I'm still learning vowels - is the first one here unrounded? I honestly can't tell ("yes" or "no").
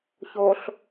no